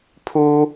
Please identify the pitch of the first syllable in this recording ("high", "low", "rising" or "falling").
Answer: high